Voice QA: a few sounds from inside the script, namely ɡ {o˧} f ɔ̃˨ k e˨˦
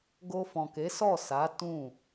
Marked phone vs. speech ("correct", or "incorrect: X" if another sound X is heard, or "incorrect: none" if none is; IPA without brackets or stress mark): correct